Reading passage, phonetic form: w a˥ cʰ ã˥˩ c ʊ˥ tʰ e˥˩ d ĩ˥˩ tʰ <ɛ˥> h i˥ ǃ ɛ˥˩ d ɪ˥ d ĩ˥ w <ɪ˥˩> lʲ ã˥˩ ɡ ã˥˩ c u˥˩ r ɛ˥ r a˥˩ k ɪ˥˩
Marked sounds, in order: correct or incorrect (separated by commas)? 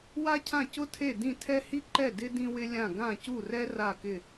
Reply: correct, incorrect